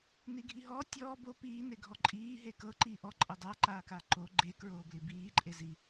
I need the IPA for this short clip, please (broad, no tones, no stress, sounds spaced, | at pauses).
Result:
n i ɡʱ i ɦ ɔː tʲ ɔː b o p iː n e ɡʱ ɔ ǃʼ iː ɦ e k ɤ ǃ iː ʔ ɔ ǃʼ ɤ dˤ a ǃ aː k a ǃ o ɡ͡ǃ e k ɹ oː b l i b iː ǃʼ e z i